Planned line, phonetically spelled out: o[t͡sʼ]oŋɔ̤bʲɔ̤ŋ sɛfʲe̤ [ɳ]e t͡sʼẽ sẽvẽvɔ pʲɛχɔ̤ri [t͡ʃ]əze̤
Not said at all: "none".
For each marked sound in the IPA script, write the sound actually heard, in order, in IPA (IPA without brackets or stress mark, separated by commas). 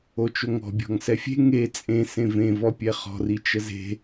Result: t͡ʃ, ŋ, t͡ʃ